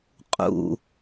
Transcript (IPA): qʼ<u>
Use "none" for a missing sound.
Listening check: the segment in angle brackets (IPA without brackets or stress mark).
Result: ṵ